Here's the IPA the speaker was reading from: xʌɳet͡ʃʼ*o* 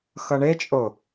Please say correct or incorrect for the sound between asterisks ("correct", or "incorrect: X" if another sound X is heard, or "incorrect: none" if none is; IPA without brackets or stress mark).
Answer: correct